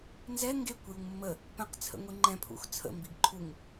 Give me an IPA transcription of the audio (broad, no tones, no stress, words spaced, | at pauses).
nzɛ ŋɡekʷ juŋmːə | pɛ̃qt͡sʰə̰ ŋʷiŋ͡ǃɛ̃pʰṵx t͡sʰə̰mbiɡ ǃʰuŋ